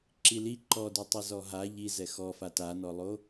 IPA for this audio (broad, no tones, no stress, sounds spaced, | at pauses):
ǁ i l i ǃ ɔ d u tˤ i z ɔ ɦ a ʎ i z ɛ x ɔ f a t a n ɔ lˠ o